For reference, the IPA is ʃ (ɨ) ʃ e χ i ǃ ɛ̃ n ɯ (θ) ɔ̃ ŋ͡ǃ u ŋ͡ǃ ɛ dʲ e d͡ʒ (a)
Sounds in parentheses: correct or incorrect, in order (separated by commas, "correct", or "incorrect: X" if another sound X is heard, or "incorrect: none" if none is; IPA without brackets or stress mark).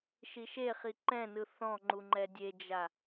incorrect: i, correct, correct